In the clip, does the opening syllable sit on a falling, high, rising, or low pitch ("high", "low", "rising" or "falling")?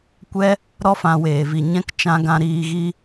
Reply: high